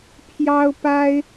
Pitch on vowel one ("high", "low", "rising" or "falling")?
high